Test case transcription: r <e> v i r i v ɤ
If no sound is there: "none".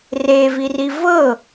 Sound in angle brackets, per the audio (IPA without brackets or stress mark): e